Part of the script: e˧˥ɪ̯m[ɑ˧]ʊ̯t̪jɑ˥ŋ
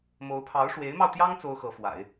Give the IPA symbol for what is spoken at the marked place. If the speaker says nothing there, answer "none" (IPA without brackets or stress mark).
ɑ˧